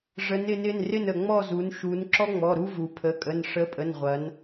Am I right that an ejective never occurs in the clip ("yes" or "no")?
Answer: no